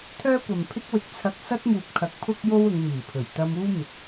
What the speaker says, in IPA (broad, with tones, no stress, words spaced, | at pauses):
t̪ʰœː˥kʷɐ˨mpʰɪ˥k̚ wɪ˨˥k̚t͡sʰɐ˧k̚ sɐ˥t̚muː˨p̚kʰɐ˨˥k̚ pʰʊ˥k̚jo˥w ʊ˨˧ŋ miː˨˩pʰɵ˨˩ɥ t̪ɐ˧muː˥mɪ˨k̚